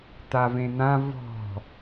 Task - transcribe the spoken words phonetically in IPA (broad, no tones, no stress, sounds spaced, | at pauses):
t̪ a v ẽ n̪ ã v ɔ̤